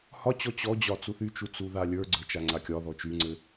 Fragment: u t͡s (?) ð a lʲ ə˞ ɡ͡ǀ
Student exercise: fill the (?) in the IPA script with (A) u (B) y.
A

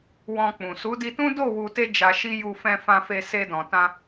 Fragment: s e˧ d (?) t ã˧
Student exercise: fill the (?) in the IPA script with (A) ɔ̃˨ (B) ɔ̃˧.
A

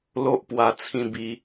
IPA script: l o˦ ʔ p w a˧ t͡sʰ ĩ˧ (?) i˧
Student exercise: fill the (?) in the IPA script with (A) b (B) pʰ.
A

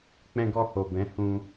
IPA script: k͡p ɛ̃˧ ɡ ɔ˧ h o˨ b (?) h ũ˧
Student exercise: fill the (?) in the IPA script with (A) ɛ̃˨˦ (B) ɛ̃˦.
A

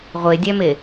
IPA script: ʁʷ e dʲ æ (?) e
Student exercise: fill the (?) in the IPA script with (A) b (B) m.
B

